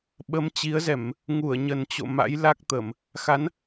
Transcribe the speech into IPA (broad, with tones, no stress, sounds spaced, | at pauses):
ɓ ə˨˦ m t͡ɕ i˨˦ ə̯ z ɛ˧˩˨ m | ŋ u˧˩ ə̯ ɲ ə˨˩ n t͡ɕ o̰˧˨ m a̰˧˥ j l a˦˥ k̚ t̪ ə˧˩˨ m | x a˨˦ n